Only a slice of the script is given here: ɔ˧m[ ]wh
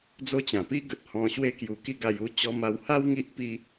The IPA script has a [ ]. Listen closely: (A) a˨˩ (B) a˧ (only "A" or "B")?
B